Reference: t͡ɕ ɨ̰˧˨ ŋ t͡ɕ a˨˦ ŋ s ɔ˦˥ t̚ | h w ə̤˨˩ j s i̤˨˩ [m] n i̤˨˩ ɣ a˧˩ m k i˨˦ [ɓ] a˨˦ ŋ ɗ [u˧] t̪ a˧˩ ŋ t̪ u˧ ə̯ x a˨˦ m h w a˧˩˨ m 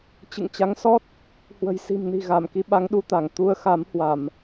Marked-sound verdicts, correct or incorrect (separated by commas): correct, correct, correct